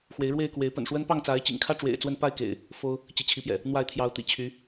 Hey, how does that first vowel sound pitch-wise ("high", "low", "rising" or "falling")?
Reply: rising